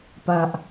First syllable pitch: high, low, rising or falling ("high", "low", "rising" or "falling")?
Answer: low